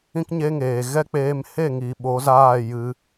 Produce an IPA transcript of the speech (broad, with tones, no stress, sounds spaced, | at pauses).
ĩ˦ k ɲ e˦ ŋ eː˨ ɣ ɛ˦ k͡p eː˧ m h e˦˨ ŋ i˨ ɓ o˨˦ z aː˦˨ j ɨ˧